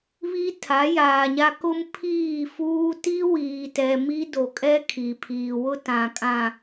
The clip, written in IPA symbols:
β i˦ tʰ a˨˦ j aː˨ ɲ a˦ k ʊ˦ m pʰ iː˦˨ f uː˦ t i˦ w iː˨ t ɛ˨ m i˦ d o˨ kʼ ɛ˦ kʰ i˨ pʰ iː˨ w ʊ˦ t ã˨ kʼ ã˨

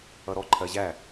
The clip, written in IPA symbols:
ʌ ɾ ɔ ǃʰ ɜ ʑ æ

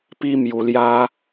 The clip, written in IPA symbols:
p i˦ m j u˧ l j a˦

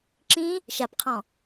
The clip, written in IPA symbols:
ǁ ĩ | ʃ a p qʰ ɔ̃

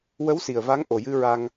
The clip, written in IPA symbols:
w ə˧˥ w s i˨˩ ə̯ v a˧˥ ŋ ʔ o˨˩ j ɨ˧ ɹ a˧ ŋ

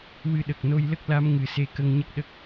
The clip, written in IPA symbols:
w ɨ˧ ɗ ə˨˩ k̚ n o˧ j l ə˦˥ k̚ l a˧˥ m ŋ ɨ˨˩˦ s e˧ k ə˧ ŋ ɲ ə˦˥ k̚ ɗ ə˦˥ k̚

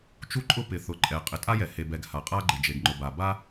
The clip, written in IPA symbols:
t͡ʃ u˥ ǃʼ ʊ˥ p ɪ˩ θ ʊ˩ ǃʼ ɛ˩ qʼ ɪ˩ tʼ a˥ j ɛ˩ h e˩ b ɛ˩ ɡ h a˩ qʼ a˥ ɡ͡ǃ ɪ˩ d͡ʒ e˩ ɡ ŋ͡ǃ ʊ˩ b a˩ b a˥

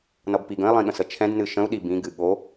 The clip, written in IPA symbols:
n ʌ b p i ɡ ə̃ i̯ lˠ ĩ ɠ ə̃ s ə t͡ʃʰ ɛ̃ d n ɨ ʃ ə̃ u̯ ɗ i b ĩ ɡ ɨ ɠ o

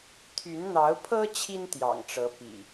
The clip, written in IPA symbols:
t̪ʰ y˨˦ n n̪ ɑ˨˦ ʊ̯ pʰ ɤ˦ t͡ɕʰ i˦ n t̪ j ɑ̰˨˩ ŋ ʈ͡ʂ ɤ˨˦ p ḭ˨˩

